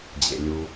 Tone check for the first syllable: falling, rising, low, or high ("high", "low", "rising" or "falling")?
low